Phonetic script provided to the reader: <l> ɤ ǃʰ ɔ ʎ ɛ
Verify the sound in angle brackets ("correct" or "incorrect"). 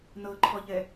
incorrect